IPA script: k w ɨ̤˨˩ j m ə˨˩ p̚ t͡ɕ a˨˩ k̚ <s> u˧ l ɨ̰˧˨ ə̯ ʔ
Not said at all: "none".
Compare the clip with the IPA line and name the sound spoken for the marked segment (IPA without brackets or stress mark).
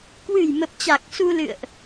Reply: s